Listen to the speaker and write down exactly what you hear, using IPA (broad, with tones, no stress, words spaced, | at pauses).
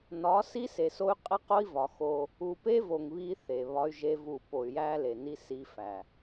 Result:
nɒ˨˦ si˦se˨so˦y̯ qʼe˦qo˦i̯vɒ˨ xo˦ | u˨pe˦ vo˨ŋ βi˦θe˨βɒ˦y̯ʒe˦ vu˦˨ po˨y̯jæ˦le˨ni˦ si˦fæ˨